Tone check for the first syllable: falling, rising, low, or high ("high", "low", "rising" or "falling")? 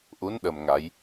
rising